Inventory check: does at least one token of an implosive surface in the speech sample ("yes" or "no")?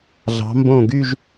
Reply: no